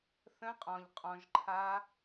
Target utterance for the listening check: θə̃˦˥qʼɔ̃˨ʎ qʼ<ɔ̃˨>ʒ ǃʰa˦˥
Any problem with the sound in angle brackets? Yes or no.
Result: no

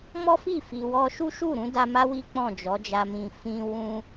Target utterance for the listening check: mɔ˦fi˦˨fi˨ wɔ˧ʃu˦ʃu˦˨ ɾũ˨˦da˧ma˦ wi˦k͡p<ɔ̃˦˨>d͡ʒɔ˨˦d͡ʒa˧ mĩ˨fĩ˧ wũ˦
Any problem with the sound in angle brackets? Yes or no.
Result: no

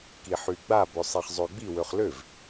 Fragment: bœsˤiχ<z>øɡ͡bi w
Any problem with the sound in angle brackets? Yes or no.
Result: yes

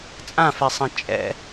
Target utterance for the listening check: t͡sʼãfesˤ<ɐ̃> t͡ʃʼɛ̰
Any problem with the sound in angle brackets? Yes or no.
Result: no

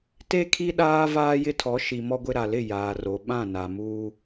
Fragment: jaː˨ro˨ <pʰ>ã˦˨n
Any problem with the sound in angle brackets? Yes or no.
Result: yes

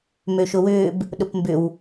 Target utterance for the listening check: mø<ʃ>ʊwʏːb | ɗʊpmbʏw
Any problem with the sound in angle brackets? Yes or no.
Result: no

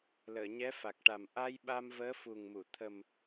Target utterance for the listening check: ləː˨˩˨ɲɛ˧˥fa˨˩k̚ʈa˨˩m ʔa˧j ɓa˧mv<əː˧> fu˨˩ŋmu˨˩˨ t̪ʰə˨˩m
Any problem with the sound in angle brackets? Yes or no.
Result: yes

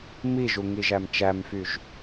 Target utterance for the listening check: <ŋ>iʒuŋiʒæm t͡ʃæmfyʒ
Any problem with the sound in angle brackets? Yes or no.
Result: yes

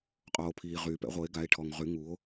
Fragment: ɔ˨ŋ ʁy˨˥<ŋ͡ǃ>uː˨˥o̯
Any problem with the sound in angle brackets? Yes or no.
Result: yes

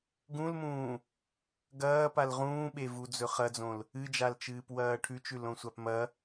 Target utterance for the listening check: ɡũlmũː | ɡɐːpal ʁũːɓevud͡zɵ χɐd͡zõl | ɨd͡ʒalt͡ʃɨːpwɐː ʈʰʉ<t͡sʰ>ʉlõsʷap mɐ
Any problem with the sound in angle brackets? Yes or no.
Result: yes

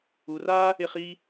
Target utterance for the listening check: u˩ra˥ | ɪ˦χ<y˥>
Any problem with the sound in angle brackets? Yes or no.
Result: yes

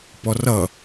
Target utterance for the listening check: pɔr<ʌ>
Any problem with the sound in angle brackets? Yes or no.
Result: no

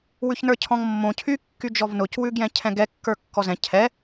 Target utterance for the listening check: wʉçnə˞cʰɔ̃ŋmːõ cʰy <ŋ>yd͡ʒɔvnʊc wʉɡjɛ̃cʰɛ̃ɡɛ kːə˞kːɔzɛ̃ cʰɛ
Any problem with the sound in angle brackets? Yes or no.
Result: yes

